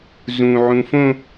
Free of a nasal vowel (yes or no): no